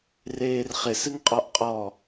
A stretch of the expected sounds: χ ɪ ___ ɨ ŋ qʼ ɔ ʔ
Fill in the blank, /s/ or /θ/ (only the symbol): s